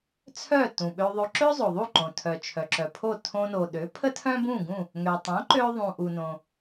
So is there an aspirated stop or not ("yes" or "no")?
yes